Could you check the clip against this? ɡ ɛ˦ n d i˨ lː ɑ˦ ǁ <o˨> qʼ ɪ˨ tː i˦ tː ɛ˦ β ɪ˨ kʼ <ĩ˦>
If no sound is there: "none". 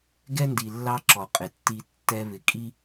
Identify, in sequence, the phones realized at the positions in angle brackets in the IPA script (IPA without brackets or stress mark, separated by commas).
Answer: ɔ˨, i˦